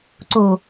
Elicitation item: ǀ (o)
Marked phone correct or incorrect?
correct